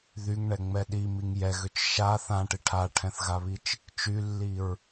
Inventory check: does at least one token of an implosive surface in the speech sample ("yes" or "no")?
yes